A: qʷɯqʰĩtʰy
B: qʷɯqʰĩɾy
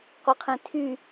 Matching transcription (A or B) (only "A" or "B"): A